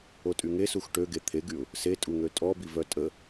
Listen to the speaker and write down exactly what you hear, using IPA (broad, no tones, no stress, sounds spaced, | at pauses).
o tʼ y ŋ e s u x ʈ ø ɡ e t̪ʰ e ɡ y ʊ̯ | s e tʼ u ŋ ø tʼ ɔ b i v œ tʼ ə